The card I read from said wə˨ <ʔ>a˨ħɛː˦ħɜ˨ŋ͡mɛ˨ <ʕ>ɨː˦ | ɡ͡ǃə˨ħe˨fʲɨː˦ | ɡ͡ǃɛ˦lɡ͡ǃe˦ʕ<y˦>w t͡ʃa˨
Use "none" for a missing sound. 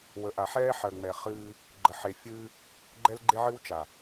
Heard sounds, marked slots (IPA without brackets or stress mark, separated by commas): ʔ, χ, ɨ˦